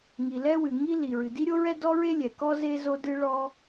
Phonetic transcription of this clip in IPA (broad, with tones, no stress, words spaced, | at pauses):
ŋi˩lɛ˥wɨ˩ ŋi˥li˩ɹɨ˩ di˥ɾʲo˥ɹɛ˥ dɔ˥ɹe˥lʲɛ˩ kɔ˥ ze˥ zo˥ dɨ˥ɭɔ˥